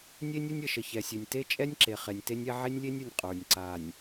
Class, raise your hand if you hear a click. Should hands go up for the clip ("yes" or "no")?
yes